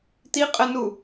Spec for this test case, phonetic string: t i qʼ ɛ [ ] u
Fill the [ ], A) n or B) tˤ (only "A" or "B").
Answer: A